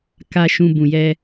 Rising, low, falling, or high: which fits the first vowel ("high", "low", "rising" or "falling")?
low